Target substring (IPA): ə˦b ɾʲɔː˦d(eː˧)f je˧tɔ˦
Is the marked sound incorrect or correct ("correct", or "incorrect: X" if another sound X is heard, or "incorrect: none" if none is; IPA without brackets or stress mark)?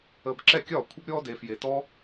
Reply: correct